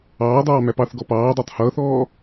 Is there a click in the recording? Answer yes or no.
no